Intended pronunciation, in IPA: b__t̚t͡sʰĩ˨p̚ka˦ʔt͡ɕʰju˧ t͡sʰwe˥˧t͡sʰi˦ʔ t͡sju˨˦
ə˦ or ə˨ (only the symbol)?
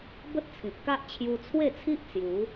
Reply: ə˦